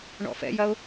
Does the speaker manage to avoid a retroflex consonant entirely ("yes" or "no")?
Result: no